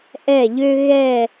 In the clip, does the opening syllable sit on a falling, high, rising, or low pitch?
falling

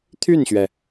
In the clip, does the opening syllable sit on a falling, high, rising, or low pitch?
falling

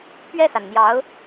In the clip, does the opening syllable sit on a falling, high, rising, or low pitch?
falling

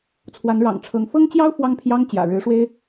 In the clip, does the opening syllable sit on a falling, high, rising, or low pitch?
rising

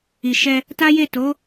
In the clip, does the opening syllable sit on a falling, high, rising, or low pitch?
low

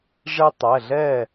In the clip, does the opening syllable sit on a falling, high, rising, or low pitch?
high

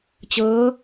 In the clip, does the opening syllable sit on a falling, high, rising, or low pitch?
rising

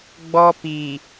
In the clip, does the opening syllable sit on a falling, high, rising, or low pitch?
high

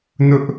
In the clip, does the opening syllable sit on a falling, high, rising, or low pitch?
high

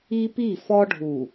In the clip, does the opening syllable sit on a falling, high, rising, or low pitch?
high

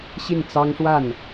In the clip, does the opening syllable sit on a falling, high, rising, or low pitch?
falling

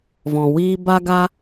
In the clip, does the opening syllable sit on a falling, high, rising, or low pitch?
low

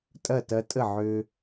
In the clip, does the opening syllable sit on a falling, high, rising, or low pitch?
falling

